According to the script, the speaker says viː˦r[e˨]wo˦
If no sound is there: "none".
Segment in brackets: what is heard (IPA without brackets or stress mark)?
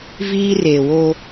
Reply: e˨